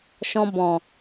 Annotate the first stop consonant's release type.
plain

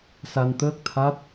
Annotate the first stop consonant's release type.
plain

